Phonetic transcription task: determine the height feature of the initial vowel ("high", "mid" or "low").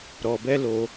mid